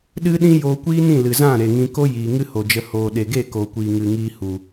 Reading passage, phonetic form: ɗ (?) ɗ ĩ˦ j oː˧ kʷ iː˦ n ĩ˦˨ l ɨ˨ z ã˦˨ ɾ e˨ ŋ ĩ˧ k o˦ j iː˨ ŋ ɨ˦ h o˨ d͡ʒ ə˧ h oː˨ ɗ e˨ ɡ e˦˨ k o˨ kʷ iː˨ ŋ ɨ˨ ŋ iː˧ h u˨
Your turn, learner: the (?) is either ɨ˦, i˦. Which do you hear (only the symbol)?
ɨ˦